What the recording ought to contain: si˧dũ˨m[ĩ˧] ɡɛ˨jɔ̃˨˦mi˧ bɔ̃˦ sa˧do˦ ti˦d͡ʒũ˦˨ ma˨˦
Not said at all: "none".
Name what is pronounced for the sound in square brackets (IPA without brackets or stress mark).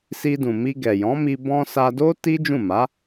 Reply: i˧